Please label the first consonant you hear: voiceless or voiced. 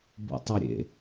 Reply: voiced